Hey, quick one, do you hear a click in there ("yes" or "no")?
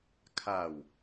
no